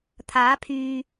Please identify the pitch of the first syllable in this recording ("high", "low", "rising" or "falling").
rising